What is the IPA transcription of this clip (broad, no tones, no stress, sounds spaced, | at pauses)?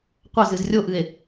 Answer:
qʷ ɐ z ɨ z rʲ o ʔ ɨ e̯